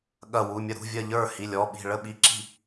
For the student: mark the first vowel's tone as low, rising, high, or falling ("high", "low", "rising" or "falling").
falling